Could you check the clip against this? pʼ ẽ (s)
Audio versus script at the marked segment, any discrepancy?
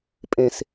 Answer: no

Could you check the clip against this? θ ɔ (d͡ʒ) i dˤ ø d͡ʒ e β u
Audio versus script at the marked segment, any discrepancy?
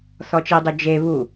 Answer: yes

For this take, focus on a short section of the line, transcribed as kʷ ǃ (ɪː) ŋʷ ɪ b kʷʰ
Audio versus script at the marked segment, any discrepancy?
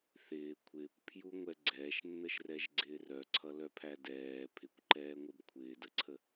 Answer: yes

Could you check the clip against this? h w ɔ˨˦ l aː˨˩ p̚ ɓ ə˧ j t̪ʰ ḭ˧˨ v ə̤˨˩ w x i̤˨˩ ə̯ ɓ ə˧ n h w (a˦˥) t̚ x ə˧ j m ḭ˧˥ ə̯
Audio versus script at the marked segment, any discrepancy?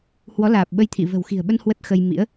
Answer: yes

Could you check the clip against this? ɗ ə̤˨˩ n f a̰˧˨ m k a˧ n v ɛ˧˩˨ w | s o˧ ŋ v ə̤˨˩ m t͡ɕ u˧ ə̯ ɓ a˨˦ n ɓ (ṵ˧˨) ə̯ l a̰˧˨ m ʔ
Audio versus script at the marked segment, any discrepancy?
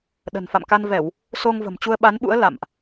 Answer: yes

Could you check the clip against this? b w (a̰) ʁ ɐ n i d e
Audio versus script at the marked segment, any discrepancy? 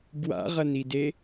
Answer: no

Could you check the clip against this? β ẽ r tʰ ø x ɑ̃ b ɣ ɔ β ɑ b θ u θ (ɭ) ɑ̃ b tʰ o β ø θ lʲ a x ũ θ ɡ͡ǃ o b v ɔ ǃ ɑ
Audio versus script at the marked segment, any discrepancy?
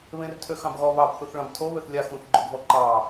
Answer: no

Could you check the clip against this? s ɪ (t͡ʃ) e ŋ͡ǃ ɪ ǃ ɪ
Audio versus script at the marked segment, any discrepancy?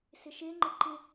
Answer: yes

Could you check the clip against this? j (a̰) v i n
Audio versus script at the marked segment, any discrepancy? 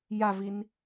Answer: yes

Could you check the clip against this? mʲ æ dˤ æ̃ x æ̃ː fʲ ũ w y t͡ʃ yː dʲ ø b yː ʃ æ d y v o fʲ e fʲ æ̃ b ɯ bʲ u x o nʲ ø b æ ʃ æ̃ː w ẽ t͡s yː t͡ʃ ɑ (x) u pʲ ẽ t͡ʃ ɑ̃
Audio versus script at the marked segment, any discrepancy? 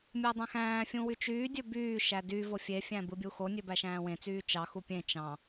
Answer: no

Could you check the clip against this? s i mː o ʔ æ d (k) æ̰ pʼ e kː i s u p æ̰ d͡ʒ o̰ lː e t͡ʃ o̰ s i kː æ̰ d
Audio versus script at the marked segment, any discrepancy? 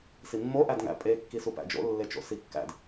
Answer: yes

